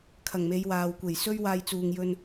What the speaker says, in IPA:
kʰ ɐ˨˩ ŋ m e˨˧ j w aː˨ w kʷ e˨˩ j s ɵ˥ ɥ w aː˧ j t͡s uː˨ ŋ j ɵ˧ n

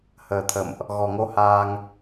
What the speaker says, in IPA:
h əː˨˩ t̪ʰ ə̰˧˨ m ʔ | ɣ ɔ˨˩ ŋ o˧ h aː˧ ŋ

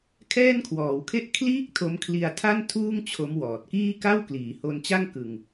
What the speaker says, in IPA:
kʰ ɛː˥˩ n kʰ w ɔː˩˦ w kʰ e˥˩ ʔ kʰ l iː˥˩ k̚ tʰ o˦˥ m kʰ l i˧ a̯ tʰ a˥˩ n tʰ uː˥˩ ŋ t͡ɕʰ o˦˥ m w ɔː˨˩ t̚ k iː˥˩ k a˥˩ w k l iː˩˦ h o˧ n t͡ɕ a˥˩ ŋ k ɯ˧ ŋ

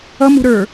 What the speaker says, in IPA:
ʌ m ṳ ɾ ə˞

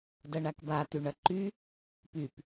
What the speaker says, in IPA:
d ɐ ɳ a k b a t y ɳ ɐ ǃ y | p y p

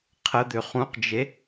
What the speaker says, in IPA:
qʰ ə d̪ ø χ ũ q d͡ʒ e

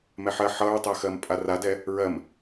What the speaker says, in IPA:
m ɛ ħ ɜ ħ ʌ ɹ tˤ ɜ x ɜ m pʼ a r a d ɛ | ɹ ɜ m

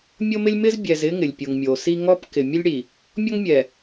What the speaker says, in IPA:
mʲ o˦ m ɪ˦ lʲ m ɪ˦ z bʲ ɛ˨ z ɪ˦ ŋ ɪ˨ lʲ pʲ ʊ˨ ŋ mʲ o˨ s i˦ ŋ ɔ˦ p k ɪ˨ mʲ ʊ˦ lʲ ɽ i˨ | mʲ ɔ˦ ŋ mʲ ɛ˨

